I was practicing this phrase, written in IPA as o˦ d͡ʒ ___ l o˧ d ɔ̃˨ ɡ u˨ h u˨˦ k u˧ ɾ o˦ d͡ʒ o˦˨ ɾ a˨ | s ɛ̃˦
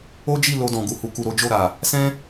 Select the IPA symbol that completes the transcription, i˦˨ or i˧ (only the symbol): i˦˨